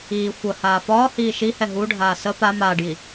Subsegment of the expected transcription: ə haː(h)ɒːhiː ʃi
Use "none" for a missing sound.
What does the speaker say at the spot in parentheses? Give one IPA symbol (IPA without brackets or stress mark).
f